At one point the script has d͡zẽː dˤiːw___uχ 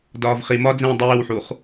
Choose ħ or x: ħ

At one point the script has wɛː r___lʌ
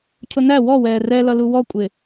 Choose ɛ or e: ɛ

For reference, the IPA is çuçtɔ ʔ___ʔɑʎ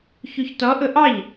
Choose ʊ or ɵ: ʊ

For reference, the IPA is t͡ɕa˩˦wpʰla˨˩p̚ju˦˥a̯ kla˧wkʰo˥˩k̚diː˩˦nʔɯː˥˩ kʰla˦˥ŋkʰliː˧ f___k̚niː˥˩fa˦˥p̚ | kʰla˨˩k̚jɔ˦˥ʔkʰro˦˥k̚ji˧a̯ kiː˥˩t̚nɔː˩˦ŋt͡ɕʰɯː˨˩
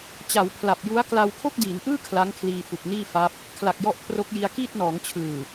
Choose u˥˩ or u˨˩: u˨˩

